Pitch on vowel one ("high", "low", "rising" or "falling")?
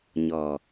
low